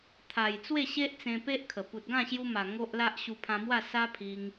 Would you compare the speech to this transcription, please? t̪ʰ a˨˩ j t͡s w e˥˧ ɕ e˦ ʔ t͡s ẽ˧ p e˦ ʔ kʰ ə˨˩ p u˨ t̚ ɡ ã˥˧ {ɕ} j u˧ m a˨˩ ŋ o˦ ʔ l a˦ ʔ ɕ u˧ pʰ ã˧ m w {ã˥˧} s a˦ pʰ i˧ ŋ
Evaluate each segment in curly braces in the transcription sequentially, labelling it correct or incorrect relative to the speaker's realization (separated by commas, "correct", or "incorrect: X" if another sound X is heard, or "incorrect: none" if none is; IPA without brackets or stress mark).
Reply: correct, incorrect: a˥˧